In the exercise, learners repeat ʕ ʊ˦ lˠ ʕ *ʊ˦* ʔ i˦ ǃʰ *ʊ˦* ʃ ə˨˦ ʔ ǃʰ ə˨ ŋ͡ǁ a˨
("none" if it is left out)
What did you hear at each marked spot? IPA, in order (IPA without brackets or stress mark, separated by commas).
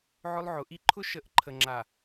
ʊ˨˦, ʊ˦